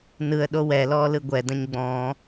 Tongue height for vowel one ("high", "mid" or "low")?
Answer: high